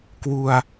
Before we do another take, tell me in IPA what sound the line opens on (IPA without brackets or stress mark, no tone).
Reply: k